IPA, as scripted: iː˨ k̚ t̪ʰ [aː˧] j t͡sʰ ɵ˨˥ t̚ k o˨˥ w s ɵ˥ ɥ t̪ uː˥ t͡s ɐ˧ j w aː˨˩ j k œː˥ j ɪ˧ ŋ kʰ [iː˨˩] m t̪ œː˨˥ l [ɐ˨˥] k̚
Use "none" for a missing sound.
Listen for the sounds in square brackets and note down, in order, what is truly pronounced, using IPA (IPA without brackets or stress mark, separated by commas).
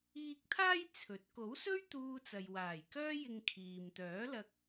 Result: aː˧, iː˨, ɐ˧